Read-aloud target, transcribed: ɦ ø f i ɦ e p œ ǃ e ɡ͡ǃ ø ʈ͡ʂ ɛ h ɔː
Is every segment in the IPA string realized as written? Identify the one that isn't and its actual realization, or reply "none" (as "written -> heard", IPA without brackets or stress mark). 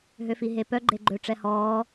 ǃ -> ɡ͡ǃ